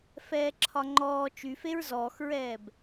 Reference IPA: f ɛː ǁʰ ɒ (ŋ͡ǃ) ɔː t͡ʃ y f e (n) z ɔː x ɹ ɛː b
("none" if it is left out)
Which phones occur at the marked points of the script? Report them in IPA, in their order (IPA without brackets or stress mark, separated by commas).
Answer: ŋ͡ǃ, ɹ